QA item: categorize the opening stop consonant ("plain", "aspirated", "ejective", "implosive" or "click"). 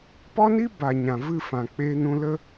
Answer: plain